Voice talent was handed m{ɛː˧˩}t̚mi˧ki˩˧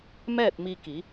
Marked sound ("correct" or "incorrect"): incorrect